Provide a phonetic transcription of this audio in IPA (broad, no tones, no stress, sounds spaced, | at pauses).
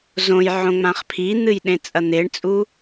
z õ j ʕ õ ŋ͡m ã χ pʰ i n̪ ɨ j ɗ ẽ t͡sʼ ɐ n̪ e ɳ t͡sʼ u